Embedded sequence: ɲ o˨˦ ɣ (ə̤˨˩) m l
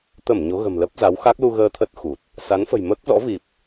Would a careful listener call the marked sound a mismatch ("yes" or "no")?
no